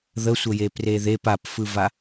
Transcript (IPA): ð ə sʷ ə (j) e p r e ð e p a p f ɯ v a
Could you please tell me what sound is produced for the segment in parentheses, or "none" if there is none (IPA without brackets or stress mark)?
j